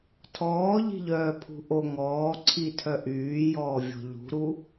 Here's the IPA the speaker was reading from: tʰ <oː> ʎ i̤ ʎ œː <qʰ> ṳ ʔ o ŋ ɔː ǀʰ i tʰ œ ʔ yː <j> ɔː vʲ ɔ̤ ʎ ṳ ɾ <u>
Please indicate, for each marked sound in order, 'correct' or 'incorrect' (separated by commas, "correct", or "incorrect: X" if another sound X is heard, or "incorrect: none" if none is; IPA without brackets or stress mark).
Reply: incorrect: ɔː, incorrect: pʰ, correct, correct